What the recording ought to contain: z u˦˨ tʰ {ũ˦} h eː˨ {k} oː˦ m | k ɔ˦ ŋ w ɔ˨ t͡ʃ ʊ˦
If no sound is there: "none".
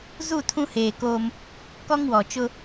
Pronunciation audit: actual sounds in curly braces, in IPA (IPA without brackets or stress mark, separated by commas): ũ˦, k